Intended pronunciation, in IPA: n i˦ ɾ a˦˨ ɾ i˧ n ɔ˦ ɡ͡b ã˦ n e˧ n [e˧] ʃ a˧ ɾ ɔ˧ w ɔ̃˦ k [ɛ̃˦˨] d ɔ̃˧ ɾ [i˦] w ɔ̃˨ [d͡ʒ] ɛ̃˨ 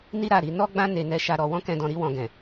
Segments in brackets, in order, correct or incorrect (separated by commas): incorrect, incorrect, incorrect, incorrect